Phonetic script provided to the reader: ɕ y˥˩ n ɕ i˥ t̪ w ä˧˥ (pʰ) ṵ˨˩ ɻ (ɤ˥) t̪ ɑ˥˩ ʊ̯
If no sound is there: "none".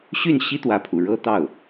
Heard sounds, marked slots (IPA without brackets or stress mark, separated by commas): pʰ, ɤ˥